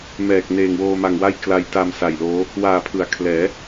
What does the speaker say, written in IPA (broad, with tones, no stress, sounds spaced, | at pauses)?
m ɛː˨˩ k̚ n eː˨˩ ŋ w oː˧ m a˧ ŋ w a˥˩ j k l a˧ j t a˧ m s a˨˩ j l oː˦˥ | w aː˨˩ pʰ ɯ˩˦ a̯ kʰ l ɛː˩˦